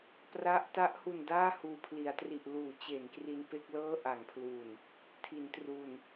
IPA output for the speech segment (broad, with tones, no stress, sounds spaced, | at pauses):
p r a˦˥ ʔ t a˦˥ ʔ h u˨˩ n d aː˥˩ h uː˨˩ pʰ l i˩˦ a̯ t r i˨˩ ʔ l uː˩˦ t͡ɕ e˩˦ n k r i˧ n p e˥˩ k̚ l ɤː˥˩ ʔ a˩˦ ŋ pʰ l u˨˩ n | tʰ i˩˦ n t r u˨˩ n